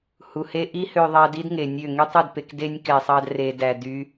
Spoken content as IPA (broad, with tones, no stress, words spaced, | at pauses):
hu˨ he˧ʔi˦hø˧ðˤɑ˧ di˦dŋe˨nʲø˦˨ ŋy˦tˤu˦˨dpe˧kde˦nʲ kɛ˧sˤɑ˦d re˧dæ˧ dy˦